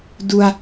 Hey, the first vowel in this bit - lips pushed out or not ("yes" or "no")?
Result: yes